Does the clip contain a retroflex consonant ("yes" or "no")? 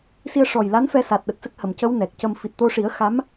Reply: yes